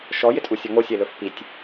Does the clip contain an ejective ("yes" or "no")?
yes